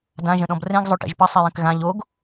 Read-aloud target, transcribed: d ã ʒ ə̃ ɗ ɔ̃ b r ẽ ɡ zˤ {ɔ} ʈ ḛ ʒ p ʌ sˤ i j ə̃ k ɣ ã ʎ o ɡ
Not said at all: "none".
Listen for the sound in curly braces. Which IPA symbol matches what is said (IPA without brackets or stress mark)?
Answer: o